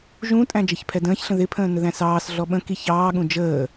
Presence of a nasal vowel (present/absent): present